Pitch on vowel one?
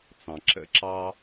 low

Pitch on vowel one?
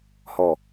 low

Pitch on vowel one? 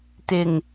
low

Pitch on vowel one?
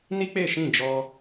high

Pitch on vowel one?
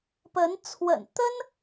rising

